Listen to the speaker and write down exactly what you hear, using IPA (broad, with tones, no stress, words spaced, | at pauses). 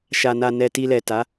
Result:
ʃa˨na˨ nɛ˨ti˨lɛ˨ ta˨˦